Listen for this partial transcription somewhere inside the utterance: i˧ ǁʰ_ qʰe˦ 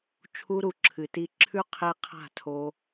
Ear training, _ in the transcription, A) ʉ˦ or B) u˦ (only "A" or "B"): A